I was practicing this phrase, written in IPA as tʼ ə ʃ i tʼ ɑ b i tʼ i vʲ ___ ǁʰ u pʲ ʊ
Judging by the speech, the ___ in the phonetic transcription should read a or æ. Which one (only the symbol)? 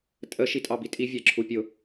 æ